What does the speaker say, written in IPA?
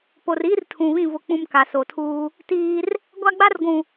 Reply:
p o˨ r iː˦ r tʰ ũ˨ β ĩ˦˨ v ʊ˦ k͡p ũ˦ m k a˨ s o˨ tʰ uː˦ | t iː˦ r | ɡʷ a˦ ɡ͡b a˦ r ɡʷ ũ˨

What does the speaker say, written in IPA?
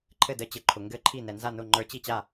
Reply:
ǃʰ ɘ˥˨ d ə˧˥ t͡ɕ ɘ˨ ǃʰ ʊ˨ ŋ ɡ ɘ˥˨ ǃʰ i˥˨ n ɛ˨ n z a˥˨ n ʊ˥˨ ŋ͡ǃ ə˞˧˥ t͡ɕ i˥˨ t͡ɕ a˥˨

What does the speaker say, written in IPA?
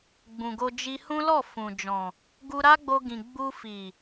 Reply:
ɡ͡b ũ˨ ɡ o˧ d͡ʒ i˧ h ũ˦ l ɔ˦˨ f ũ˨ d͡ʒ ɔ̃˨ | ɡ u˧ ɾ a˦ ɡ͡b o˧ ɡ ĩ˨ ɡ͡b u˧ f i˨

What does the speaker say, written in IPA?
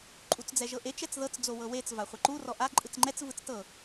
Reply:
ǃʼ u t͡s d͡z ɛ ʒ ɤ ʔ e t͡ʃ ɛ t͡s ð ɤ t͡s d͡z o w ɤ w e t͡s v a χʷ ɛ ǃ u r ɔ ʔ a ǃʼ ɯ t͡s ŋ͡ǃ ɛ t͡s v ɯ t͡s t ɤ

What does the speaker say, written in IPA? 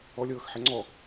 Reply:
ɔ lʲ ɤː x ħ ɛ ŋ͡ǀ ɔ

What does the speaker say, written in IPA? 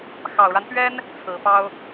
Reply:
x ɑ˨˩ ʊ̯ ɻ a˦ n p ɥ ɛ˥ n | t͡sʰ ɹ̩˨˩ p ɑ˥ ʊ̯

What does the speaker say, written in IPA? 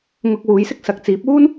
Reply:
ŋ ʊ˧ k̚ w uː˨˧ j s ɪ˥ k̚ s ɐ˨ k̚ t͡s iː˨˥ p̚ uː˥ n

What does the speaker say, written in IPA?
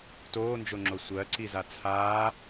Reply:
t oː n d͡ʒ o ŋ͡ǁ o sʷ ɜ ǀ i z a t͡sʰ aː

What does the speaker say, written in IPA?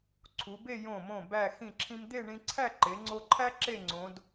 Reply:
ǀʰ u˩˧ b e˥˧ j õ˧˩ m õ˧˩ b æ˧˩ x ĩ˧˩ ǁʰ ĩ˧ m d̪ e˥˧ ɳ ĩ˧ ǀʰ æ˥˧ ǃ e˩˧ ŋ͡ǀ o˧ ǃʰ æ˥ ǁ e˥˧ ŋ͡ǀ õ˩˧ d

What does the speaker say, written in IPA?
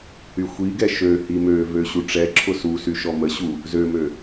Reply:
h y xʷ i ɡ ɛ ʃ ø h i m ø v ø ɕ u ʈ͡ʂ ɛ ǁʰ ʊ s u s y ʃ ɔ m ə ɕ u | z ø m ø

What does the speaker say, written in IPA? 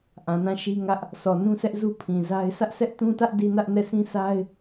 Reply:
ʔ ã˨ n ã˦˨ ʃ i˦ ŋ ä˦ ʔ | s ɔ˨ n ũ˦ sʰ ɛ˦ ʔ z u˦ pʰ ĩ˨ z a˦ ɪ̯ s ä˦ ʔ sʰ ɛ˦ ʔ t ũ˦ t ä˦ ʔ d i˦ n ä˦ ʔ n ɛ˦˨ sʰ ĩ˦ s a˦ ɪ̯

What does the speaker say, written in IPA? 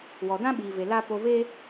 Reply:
w ɔ˨ d ã˦ ɓ iː˨ v e˨ l a˦ p o˧ v e˦

